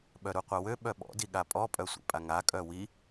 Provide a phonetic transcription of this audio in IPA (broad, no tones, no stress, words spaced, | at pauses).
ɓœɾuqʷawø ɓœɓɔ̰ diɠapʼɔ pʼœsʷḭpʼaŋa kʼœwi